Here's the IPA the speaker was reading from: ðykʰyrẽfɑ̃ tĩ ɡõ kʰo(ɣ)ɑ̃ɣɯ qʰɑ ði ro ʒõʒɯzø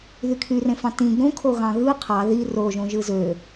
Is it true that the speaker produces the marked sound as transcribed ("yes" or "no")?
yes